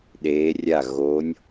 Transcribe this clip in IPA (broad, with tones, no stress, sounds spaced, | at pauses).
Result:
ɗ eː˧˥ rʲ a˥˨ ɣ o˧˥ nʲ